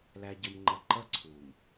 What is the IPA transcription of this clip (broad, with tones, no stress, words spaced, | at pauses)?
læ˨ɟəː˨mŋ͡ǃʌ˨ǃʌ˦ ǀʰuː˨m